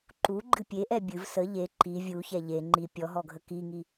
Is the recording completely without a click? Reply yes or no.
no